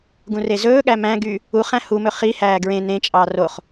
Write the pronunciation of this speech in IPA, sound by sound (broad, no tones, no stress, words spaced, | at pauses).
ɡũrezɵːɠæ mæ̃ɡy | uχæ̃ humɵ χihæː ɡɹẽ nẽt͡ʃʼɑ roχ